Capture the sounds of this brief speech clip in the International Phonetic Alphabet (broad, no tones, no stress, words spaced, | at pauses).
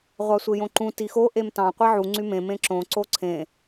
ʁʷɑsʷejõǃũ tixo ʔemtɑ̃ qʷeʕu ŋ͡ǀymẽ mẽǁõ ǀoǀʰẽ